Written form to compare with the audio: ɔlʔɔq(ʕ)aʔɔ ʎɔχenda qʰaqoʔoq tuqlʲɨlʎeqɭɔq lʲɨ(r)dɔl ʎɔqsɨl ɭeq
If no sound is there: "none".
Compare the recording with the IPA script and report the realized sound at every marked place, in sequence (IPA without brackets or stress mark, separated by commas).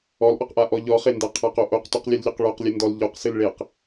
ʔ, n